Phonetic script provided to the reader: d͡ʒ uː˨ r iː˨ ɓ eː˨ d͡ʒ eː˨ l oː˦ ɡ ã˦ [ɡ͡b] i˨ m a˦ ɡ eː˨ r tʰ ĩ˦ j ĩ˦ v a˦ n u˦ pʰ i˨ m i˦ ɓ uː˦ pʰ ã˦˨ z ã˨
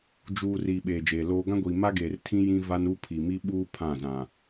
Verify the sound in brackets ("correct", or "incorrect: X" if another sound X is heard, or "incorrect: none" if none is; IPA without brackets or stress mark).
incorrect: ɡʷ